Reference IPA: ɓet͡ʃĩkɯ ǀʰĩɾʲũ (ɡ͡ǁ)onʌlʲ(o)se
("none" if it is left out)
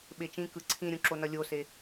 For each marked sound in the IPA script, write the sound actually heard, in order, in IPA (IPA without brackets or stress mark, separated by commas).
ǁ, o